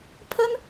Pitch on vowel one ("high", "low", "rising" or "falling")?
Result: high